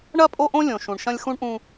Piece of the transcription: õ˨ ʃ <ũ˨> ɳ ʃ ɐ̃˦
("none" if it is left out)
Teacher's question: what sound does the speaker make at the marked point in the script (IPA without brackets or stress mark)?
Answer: ũ˨